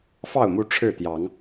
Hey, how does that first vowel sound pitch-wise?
falling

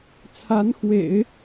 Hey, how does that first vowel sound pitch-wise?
rising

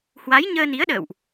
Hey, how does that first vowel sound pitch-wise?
rising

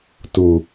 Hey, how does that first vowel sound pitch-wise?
low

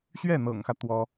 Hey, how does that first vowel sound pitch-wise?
falling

